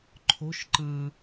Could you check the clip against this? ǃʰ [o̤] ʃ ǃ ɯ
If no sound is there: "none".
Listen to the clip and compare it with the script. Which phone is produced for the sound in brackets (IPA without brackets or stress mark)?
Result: o̤